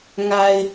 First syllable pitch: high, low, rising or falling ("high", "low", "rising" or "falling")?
low